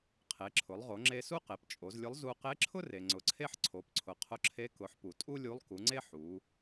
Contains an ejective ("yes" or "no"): yes